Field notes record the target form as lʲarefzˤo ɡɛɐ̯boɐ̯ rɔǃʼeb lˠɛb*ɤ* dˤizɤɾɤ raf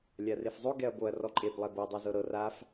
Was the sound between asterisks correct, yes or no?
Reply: yes